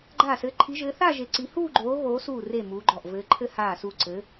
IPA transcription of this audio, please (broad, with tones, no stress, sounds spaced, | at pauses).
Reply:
ɡ͡ǃ aː˧˩ s ɘː˨˦ ǃʰ i˨˦ ʒ ɘː˨˦ θ a˥˧ ʒ e˨˦ ǀ i˨˦ h uː˥˧ ɡ͡ǃ oː˨˦ ɣ oː˨˦ s uː˧˩ r e˧˩ m uː˨˦ ɡ͡ǃ ɔ˧˩ ʔ v ɘː˨˦ ǃʰ ɘ˥˧ h aː˧˩ s u˧˩ ǀ ɘ˨˦